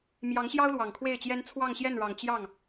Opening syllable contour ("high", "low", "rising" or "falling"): rising